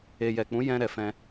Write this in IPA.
e˨jɛ˨k͡pũ˨˦jɛ̃˧ ɾɛ˨fɛ̃˧

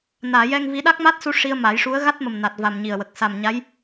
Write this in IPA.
naː˨˩˨jɛ˧ŋvi˧˥ ɗa˦˥k̚ma˦˥t̚su˧ ʂi˧ə̯ ma˨˩˦jʂu˧˥ə̯ ɣa˦˥t̚mə˨˩m na˨˩t̚va˨˩m ɲi˨˩ə̯wə˨˩k̚ sa˨˩mɲa˧˥j

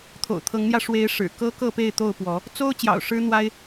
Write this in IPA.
t̪ʰo̰˨˩ʊ̯t̪ʰɤ˨˦ŋn̪jä˧ ʂwe˨˦ɪ̯ ʂɻ̩˨˩ kɤ˦kɤ˥˨pe˥˨ɪ̯ t̪o˥˨ʊ̯pwɔ˨˦ | t͡so˦ʊ̯ t͡ɕjɑ̰˨˩ʊ̯ʂɻ̩˦n̪wa˦ɪ̯

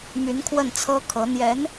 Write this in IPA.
my˧˥nkʰwə˥˩nt͡sʰɤ˥ kʰɤ˧˥ n̪jɛ˧˥n

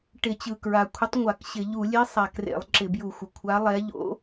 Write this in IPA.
ʈɪ˧˩˧t͡ɕɯ˨˩ kɹa˨˩ kʷʰɪ˧˥tˤŋʷa˧˩˧kɕɪ˧˩˧ ʎu˧˩˧lʲe˧˥ sˤa˨˩krḛ˧˩˧lˠ ǁɪ˧˩˧bju˧˩˧xʷə˨˩ kʷʰa˧˥lˠɛ˧˥ ʎo̰˧˥

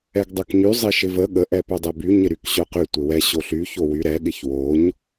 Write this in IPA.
ɛɡdˤœkɲy zˤɪʃɪvə ɠə ʔɛpœdˤɛby ɲɪɾykɕœqy tʷɪwɛ ɕoɬy çowy ɾɛ ɠɪçwoɲ

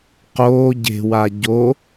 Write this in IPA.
qoː ɟe̤wa ɟo

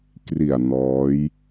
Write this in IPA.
kri˨˩a̯ nɔː˦˥j

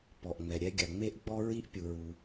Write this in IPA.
pɔ˩ʔŋ͡mɛ˩ɾʲɛ˥ ɡʲa˩ ŋ͡me˥ʔɡ͡bɔ˥ɹi˥ʔpʲu˩ ɹu˩

